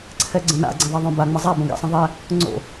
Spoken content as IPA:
ǀʰ ɛ ɡ͡ǀ ə̃ n a̰ ɡ͡ǀ ɛ̃ ðˤ ɐ ðˤ õ b a ŋ͡m ə zˤ a b õ ɡ ɛ̰ sˤ ə̃ ðˤ ɛ | ŋ͡ǀ o̰

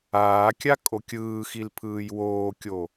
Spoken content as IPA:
aː kʲ a kʼ o kʲ ɯː x i l pʰ ɯː j w oː kʲ o

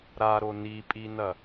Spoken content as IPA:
ɾ a ɾ o n i pʼ i n ɐ

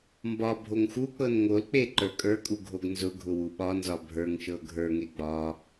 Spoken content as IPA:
m b ɒ bʱ o ŋ x u k͡p ɤ n ŋ o l k͡p e ǃ ə˞ kʼ ə˞ kʼ u ɡʱ o ɡ n z ʊ ɡʱ ʊ w u ɓ ɒ n z ɒ bʱ ə˞ ŋ ʃ ɤ ɡʱ ə˞ ŋ e ɡ͡b ɒ

